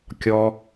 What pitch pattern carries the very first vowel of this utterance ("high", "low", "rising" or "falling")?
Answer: high